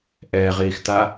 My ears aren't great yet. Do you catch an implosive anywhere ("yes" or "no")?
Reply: no